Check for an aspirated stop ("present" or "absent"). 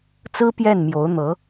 absent